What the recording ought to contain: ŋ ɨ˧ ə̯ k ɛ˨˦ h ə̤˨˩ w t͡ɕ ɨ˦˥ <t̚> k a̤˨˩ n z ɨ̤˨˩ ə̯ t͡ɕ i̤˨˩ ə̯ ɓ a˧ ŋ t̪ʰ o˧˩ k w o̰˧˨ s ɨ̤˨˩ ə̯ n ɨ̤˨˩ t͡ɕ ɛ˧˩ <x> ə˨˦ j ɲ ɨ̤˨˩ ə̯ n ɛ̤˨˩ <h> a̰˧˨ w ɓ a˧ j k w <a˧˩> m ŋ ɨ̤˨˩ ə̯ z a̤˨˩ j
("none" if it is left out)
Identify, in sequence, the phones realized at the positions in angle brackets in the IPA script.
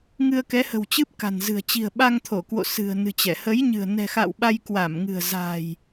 p̚, h, x, a˧˩

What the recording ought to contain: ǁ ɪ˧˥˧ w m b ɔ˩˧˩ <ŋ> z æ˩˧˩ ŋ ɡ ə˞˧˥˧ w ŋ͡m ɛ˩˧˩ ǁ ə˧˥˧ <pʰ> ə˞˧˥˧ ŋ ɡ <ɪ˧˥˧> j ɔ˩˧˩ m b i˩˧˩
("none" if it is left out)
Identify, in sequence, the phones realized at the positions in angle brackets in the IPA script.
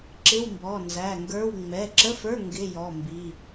n, f, ɪ˧˥˧

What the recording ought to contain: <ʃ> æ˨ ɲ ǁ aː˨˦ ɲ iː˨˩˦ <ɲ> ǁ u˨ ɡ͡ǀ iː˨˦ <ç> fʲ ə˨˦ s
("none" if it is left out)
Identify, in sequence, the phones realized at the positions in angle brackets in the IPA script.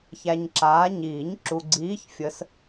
ç, ɲ, ç

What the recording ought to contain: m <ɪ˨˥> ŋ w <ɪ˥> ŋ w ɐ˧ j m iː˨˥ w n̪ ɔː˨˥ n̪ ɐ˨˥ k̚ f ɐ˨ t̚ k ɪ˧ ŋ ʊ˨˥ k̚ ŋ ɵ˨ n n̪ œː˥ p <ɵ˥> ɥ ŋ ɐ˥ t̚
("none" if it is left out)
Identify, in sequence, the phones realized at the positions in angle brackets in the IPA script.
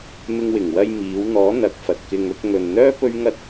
ɪ˧, ɪ˨˩, ɵ˥

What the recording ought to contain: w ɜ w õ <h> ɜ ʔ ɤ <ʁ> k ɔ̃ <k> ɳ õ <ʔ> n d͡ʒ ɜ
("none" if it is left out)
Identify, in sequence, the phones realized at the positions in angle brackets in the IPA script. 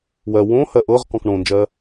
h, ʁ, k, none

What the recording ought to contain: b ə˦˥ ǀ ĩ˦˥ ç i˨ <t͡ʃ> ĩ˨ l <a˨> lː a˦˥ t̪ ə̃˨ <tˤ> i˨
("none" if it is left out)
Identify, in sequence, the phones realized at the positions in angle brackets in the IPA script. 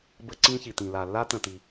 t̪, a˨, t̪

